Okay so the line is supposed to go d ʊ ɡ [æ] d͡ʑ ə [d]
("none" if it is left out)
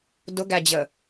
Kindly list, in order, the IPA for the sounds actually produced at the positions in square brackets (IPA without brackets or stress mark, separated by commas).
æ, none